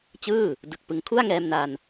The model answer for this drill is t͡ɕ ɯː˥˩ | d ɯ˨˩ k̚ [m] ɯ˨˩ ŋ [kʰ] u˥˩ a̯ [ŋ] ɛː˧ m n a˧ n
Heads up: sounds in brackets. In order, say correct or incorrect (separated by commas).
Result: incorrect, correct, correct